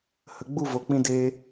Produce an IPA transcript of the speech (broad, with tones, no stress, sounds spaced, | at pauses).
h ə˨ ɡ͡b u˦˨ v o˨ k͡p ĩ˧ d e˧